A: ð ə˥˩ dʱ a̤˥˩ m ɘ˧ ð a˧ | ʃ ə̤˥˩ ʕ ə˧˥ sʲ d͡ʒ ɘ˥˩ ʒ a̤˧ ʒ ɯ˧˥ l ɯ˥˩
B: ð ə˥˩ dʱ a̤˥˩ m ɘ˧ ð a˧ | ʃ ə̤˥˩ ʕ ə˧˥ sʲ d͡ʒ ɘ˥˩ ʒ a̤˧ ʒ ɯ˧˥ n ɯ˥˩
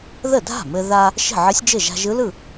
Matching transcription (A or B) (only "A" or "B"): A